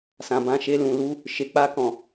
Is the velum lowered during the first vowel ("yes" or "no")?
yes